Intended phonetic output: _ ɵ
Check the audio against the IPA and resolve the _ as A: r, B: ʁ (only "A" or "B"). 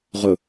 B